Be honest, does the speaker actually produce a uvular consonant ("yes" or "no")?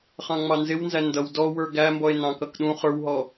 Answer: yes